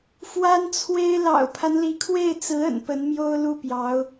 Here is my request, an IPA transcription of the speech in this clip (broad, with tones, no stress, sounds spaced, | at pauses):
f w a˥ n t͡sʰ w e˥ ɪ̯ l ɑ̰˨˩ ʊ̯ pʰ a˦ n l i˧˥ kʰ w e˥˩ ɪ̯ t͡s ɹ̩˧˥ ə̰˨˩ n p ə˧˥ n m j o˥ ʊ̯ l u˥˩ p j ɑ˧˥ ʊ̯